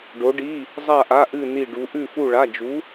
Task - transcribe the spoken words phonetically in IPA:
ɖ o˧˥ ɖ i˧˥˧ | zˤ a˥˧ ʔ a˧˥˧ ʔ ɨ˥˧ n i˥˧ ɖ u˧˥ ʔ ʉ˥˧ f u˥˧ ɭ a˧˥˧ d͡ʒ u˧˥

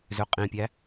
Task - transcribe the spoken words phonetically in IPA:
z ø qʼ ĩ pʲ æ

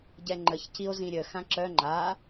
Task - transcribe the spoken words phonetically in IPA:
ɟ ɛ ŋ͡ǃ ə ç c i o̯ z ĩ ɾʲ ə x ã ǁ œ ŋ͡ǃ a

